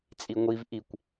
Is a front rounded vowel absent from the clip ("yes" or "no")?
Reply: yes